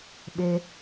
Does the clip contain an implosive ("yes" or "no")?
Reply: yes